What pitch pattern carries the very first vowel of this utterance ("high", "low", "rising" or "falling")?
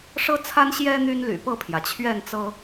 high